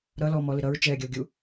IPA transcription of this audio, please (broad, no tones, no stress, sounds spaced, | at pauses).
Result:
ɾ ʌ l ɔ m ɔ l ɪ ɾ ʌ ɹ t͡ʃ ɛː ɡʲ ʌ o̯ ɡʲ u